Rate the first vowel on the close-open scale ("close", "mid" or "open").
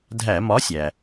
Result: open